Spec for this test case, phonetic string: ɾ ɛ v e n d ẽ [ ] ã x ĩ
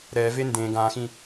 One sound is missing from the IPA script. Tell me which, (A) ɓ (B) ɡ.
B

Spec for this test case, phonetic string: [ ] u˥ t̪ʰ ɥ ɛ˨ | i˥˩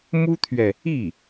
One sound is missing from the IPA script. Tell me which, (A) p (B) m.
B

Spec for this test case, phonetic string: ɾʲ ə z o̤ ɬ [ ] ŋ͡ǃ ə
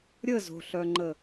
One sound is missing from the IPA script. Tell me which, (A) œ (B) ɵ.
A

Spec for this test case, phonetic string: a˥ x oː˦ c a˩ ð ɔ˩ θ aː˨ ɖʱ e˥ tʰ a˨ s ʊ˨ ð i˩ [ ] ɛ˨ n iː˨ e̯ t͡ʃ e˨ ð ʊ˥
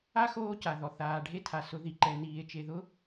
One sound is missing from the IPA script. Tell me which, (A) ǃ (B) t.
A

